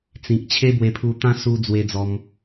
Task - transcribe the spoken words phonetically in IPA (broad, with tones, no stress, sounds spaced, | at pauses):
t͡s ĩ˨ k̚ t͡ɕʰ e˦ b w e˧ pʰ u˧ t̪ ã˦ s u˧ d͡z w e˧ d͡z ɔ˧ m